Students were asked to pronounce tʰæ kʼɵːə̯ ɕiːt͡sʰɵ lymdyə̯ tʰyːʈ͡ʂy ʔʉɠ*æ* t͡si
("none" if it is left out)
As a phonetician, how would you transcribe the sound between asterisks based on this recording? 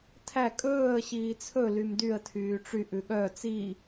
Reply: œ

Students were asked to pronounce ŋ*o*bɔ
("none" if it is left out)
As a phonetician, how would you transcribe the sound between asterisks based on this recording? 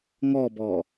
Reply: ɔ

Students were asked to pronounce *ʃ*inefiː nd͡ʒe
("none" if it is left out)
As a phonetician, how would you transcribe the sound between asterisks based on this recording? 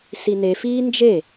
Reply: s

